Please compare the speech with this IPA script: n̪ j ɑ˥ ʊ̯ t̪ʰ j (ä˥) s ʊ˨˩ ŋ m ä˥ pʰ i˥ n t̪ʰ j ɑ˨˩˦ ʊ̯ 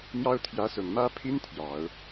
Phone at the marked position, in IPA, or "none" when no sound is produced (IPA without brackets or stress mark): ä˧˥